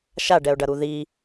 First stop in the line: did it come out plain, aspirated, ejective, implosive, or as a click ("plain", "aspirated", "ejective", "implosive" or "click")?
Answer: plain